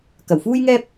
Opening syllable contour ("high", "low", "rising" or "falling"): low